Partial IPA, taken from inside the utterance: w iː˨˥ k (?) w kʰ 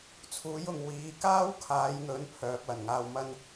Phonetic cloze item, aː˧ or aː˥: aː˥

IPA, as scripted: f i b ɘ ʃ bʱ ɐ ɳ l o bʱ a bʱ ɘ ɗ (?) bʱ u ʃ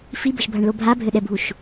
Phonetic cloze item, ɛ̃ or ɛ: ɛ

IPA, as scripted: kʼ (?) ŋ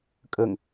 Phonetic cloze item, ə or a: ə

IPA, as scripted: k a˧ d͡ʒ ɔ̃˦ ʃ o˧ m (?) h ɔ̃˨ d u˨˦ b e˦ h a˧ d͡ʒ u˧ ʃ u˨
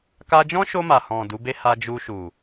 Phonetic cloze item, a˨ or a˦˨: a˨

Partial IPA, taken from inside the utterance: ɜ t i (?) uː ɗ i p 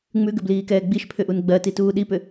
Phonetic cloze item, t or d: t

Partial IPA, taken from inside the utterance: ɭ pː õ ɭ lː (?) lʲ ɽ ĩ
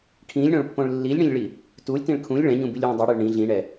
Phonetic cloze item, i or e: i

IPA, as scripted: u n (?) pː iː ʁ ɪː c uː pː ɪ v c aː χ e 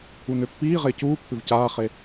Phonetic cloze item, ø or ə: ø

